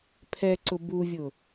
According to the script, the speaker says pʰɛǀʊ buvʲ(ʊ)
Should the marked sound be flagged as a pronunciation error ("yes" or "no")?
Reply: no